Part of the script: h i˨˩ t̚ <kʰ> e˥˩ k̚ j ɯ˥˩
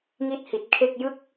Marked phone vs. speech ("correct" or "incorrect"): correct